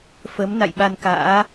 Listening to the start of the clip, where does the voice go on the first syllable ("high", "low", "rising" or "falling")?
rising